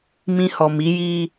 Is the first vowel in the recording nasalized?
yes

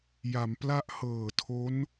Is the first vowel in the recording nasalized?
no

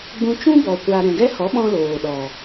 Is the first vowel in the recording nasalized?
yes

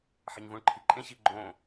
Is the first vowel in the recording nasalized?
no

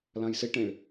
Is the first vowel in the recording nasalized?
yes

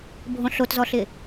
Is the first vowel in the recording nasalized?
yes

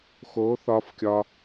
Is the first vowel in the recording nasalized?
no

